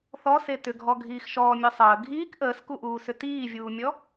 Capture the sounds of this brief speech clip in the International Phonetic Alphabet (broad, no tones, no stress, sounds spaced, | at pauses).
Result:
θ ɔ s e t ʏ ɡʱ ɔ ɡʱ iː x ʃ ɔː mʲ ɔ sˤ əː ɡʱ iː k ʔ əː s k u ʔ uː s ʏ t iː vʲ uː mʲ ɔ